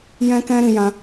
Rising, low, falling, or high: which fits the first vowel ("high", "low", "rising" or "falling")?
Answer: high